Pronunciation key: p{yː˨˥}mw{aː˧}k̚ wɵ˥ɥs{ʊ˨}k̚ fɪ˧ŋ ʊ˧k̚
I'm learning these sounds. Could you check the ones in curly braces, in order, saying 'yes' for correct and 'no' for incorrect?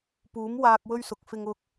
no, yes, yes

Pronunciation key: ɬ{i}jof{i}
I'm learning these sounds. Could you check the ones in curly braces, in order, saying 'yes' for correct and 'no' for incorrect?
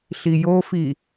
yes, yes

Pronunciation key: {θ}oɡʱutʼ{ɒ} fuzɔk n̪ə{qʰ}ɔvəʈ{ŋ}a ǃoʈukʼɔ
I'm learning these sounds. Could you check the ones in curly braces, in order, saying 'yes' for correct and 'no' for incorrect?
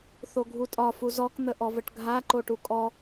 yes, yes, no, no

